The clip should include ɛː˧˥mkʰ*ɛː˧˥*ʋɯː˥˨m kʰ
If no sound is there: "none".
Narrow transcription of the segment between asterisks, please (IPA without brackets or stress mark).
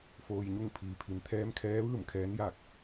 ɛː˧˥